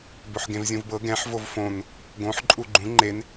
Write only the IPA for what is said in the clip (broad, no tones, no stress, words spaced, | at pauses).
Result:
bɵħɡẽvzʲũvbɤ ɡɛ̃ħ vovfõn | ɡõħ ǃʼuɡ͡ǃũ ŋ͡ǃen